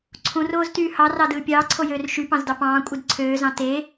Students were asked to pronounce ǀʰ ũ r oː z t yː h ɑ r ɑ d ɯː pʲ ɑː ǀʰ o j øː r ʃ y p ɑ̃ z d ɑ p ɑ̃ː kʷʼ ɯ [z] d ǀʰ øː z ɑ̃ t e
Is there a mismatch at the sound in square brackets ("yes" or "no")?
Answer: yes